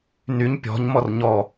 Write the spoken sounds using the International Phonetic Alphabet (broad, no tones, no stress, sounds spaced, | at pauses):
n y ɲ pʲ ɔ̤ ɲ m ɔ r ɲ ɔ